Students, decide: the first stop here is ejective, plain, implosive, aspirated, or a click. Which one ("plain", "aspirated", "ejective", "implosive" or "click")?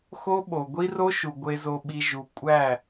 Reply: implosive